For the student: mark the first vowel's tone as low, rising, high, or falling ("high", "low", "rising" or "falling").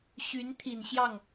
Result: rising